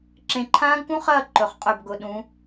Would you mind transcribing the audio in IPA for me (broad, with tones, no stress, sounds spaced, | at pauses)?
ǁ ẽ˧˩ ǃʰ ãː˦˥ ɡ k ũ˦˥ χ ɐː˥˨ ǃ ɵ˩˧ χ qʼ ɵ˧˩ b ɡ ʊ˩˧ ɗ ũ˩˧